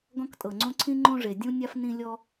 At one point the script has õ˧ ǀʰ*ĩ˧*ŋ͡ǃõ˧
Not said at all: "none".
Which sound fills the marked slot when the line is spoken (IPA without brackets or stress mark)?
ĩ˧